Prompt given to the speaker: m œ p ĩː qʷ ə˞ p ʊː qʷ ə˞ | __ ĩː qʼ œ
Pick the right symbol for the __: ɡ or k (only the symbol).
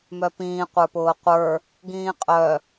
ɡ